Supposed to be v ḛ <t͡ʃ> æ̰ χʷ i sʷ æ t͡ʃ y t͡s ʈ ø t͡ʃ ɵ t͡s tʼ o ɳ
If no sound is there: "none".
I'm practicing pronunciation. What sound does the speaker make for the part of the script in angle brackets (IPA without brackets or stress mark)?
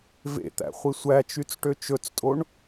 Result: t̪